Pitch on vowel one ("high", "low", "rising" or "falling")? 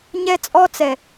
high